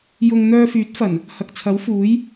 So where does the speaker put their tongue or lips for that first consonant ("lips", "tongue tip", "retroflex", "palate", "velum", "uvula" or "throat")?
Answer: palate